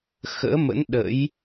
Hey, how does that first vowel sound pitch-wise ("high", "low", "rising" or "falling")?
rising